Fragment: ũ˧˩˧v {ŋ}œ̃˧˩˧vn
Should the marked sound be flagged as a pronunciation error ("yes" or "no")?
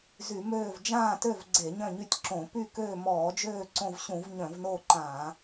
yes